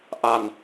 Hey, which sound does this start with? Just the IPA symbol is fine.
ʔ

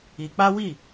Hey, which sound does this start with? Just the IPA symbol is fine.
i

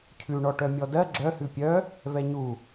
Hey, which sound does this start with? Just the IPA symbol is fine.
cʰ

